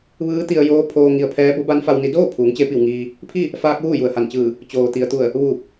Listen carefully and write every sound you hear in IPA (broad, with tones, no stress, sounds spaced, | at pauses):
ʋ ɯː˧˥ t̪ i˧ ə̯ j oː˧˥ pʰ oː˧ ŋ i˧ ə̯ pʰ ɛː˧˥ b o˧˥ b a˧˥ n f a˧ w n i˧ d oː˥˨ pʰ uː˩˧ ŋ t͡ɕ e˧ p i˧˩ w ŋ iː˧ | pʰ i˥˨ | f aː˧ k̚ ʋ uː˥˨ j u˩ ə̯ h a˧˩ n t͡ɕ ɯː˧˩ | t͡ɕ oː˩ t̪ i˩ ə̯ t̪ u˧˩ ə̯ | ʋ uː˧˩ p̚